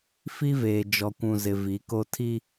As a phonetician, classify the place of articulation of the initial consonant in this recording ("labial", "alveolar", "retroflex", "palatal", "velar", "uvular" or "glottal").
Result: labial